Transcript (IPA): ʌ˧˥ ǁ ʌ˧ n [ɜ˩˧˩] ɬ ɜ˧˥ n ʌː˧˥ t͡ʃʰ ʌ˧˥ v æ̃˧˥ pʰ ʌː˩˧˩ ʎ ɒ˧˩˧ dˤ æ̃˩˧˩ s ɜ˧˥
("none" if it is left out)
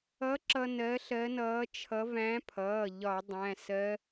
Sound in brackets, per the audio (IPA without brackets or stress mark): ɜ˧˥